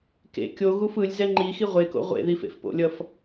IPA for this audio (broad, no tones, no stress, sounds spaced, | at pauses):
k ḛ kʲ o ɣ u f ɯ lʲ z ɛ ŋ͡ǃ i x i ʁʷ e k o̰ ʁʷ ḛ ð i f ḛ f p o̰ lʲ ʌ f